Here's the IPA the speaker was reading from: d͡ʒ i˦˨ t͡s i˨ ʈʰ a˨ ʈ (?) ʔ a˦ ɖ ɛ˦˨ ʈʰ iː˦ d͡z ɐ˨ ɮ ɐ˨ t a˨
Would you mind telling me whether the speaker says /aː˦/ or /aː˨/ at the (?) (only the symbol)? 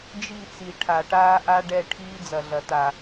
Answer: aː˦